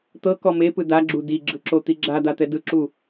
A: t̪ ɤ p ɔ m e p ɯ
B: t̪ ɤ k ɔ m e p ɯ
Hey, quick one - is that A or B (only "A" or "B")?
B